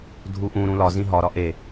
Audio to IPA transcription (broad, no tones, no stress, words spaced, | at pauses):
dʱuʔũ ɾũlɒ zĩɦɒ ɾɒʔe